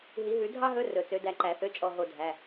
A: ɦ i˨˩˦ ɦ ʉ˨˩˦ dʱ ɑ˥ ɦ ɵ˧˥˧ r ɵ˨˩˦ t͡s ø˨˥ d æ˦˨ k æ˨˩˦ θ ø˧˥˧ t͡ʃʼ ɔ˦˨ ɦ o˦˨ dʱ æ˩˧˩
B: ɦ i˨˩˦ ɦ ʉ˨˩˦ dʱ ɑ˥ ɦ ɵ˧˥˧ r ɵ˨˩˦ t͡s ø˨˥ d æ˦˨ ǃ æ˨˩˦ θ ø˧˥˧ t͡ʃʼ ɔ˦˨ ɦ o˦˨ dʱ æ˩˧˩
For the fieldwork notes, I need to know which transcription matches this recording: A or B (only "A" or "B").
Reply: B